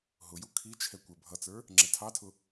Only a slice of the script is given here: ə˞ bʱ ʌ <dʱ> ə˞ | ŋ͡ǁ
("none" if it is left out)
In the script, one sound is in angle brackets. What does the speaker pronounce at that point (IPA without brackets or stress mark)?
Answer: t͡s